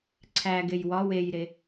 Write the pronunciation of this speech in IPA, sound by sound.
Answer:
ǀʰæɡej wɒ wejɾe

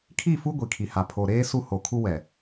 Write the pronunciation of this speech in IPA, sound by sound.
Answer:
kʰi˦˨ fu˦ ɡʷi˨kʰi˨ ha˨pʰo˨ɾeː˦ su˦ho˨kʰu˦ wɛ˨

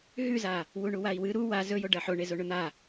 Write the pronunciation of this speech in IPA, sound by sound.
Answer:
ɦʉza | wuɳuwai̯wɨ ɾu wa zɵjo ɖɐħo ɳezoɳɵn̪a

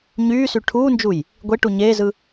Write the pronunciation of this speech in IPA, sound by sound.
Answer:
ɲyːsy ʈʰuːnd͡ʒuj | ɡʷe ʈuɲeːzɯ

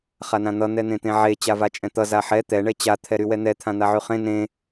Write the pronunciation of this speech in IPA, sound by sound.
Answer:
χanãn̪ʌ n̪ɛn̪ẽt̪ẽʕe t͡ɕavat͡ʃʼɛ̃t̪ʌ zaħɛ t̪ɛ ɳɛt͡ɕa t̪ʰɛɾywɛn̪ɛ t̪ʰãn̪aʕyχẽ nẽ

